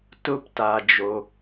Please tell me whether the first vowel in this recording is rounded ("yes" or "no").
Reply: yes